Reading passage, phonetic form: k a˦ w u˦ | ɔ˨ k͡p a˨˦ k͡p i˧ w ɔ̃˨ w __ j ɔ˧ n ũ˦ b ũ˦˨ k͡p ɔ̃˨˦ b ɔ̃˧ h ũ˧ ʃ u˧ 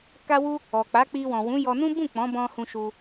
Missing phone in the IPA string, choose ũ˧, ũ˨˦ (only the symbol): ũ˨˦